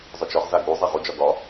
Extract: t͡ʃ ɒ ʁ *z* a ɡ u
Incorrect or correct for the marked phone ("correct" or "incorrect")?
correct